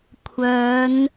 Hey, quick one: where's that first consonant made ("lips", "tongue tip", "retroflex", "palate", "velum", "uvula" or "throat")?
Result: velum